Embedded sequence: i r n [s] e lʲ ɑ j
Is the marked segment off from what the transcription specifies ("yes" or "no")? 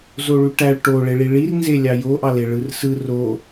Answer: yes